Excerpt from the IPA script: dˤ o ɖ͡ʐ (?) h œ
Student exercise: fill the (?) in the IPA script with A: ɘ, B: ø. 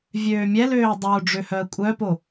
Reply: B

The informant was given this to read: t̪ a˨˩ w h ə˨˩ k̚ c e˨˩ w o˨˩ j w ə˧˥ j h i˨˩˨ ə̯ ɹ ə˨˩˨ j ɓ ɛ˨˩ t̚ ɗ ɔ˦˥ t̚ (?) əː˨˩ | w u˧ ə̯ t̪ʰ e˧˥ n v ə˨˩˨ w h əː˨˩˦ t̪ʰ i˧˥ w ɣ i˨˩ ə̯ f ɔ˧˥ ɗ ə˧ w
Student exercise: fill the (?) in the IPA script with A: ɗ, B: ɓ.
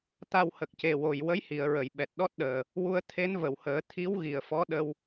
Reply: A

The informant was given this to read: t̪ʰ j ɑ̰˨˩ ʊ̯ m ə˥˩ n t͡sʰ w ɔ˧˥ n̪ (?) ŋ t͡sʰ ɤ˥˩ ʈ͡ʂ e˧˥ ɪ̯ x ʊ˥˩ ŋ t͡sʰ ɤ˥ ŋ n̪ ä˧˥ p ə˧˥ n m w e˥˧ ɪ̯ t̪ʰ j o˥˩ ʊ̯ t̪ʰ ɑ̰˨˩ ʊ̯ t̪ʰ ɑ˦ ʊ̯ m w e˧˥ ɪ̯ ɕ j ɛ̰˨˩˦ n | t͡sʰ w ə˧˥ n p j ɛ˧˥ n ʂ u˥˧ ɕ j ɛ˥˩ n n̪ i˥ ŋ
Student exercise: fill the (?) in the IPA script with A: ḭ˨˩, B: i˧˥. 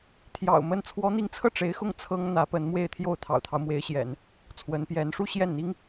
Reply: B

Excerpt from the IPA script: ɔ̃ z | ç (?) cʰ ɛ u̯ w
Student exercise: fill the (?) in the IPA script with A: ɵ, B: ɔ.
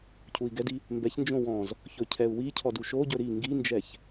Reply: A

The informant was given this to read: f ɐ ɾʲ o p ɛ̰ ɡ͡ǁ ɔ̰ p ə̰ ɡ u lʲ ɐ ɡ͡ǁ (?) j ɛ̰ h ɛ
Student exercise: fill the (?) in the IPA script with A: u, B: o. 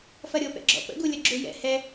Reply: A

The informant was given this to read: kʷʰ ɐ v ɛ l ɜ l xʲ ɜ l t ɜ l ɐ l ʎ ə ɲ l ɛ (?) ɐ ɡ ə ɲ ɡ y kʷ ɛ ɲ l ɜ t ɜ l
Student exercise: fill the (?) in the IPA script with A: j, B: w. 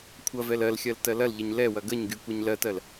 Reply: B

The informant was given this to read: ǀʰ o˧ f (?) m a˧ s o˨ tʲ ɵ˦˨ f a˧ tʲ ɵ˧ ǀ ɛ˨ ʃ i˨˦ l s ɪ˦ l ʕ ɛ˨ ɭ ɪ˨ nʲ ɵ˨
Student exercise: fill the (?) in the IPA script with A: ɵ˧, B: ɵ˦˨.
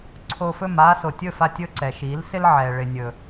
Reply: B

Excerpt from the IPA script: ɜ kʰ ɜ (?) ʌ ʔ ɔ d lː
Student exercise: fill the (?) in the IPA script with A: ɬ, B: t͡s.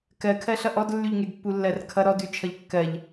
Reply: A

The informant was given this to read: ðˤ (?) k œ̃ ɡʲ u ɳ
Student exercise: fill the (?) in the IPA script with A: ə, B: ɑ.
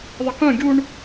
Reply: A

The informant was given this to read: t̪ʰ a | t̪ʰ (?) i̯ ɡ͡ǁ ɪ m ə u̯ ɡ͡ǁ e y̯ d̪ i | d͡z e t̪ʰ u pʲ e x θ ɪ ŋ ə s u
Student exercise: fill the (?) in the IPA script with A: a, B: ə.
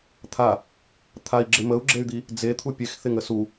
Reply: A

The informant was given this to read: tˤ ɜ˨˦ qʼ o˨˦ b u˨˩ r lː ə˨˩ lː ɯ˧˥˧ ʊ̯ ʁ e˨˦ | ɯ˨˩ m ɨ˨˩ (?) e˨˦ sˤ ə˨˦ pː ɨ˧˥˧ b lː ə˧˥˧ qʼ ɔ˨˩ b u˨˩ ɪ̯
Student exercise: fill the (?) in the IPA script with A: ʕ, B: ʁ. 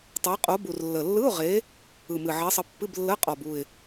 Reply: A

